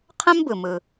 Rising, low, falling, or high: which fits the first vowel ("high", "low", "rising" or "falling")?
high